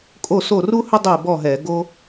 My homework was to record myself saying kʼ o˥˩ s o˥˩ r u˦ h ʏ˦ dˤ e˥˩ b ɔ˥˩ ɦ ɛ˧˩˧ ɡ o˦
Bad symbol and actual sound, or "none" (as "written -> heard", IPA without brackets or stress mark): none